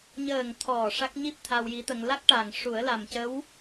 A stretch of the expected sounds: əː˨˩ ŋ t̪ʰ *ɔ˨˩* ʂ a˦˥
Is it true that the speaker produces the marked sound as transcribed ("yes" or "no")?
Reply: yes